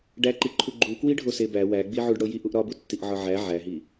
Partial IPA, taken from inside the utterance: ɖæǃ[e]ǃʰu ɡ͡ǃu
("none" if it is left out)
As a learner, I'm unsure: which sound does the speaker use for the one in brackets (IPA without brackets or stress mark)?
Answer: i